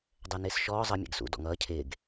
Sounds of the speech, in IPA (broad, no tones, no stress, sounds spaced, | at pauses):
dˤ ɛ n ɪː s ʃ ɔː zˤ ʌ mʲ ɛ̰ ɡ s ṵ d ɔ̰ ŋ ʌː cʰ ɪː ɡ